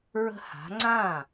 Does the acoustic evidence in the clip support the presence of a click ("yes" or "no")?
yes